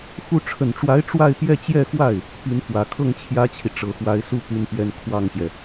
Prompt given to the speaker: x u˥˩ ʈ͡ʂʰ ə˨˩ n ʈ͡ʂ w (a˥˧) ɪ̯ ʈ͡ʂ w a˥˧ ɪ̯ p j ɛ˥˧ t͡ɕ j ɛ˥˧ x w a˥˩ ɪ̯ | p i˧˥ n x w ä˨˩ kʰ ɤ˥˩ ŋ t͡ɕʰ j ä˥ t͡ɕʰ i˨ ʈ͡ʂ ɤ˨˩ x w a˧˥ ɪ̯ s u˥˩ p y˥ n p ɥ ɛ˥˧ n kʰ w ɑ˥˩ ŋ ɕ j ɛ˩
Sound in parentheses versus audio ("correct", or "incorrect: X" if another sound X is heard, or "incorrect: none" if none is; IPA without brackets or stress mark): incorrect: a˧˥